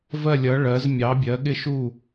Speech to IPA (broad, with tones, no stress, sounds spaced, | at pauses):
v ɜ˥˧ lʲ ʌ˧˥ ɭ ɜ˧˥ z mʲ ɑ˧˥ bʲ ɜ˧˥ ɠ ɪ˥˧ ʃ u˥˧